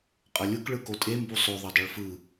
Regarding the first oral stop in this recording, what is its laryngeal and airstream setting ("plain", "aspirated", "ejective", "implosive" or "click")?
ejective